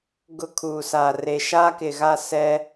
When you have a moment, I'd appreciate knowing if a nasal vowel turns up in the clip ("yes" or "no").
no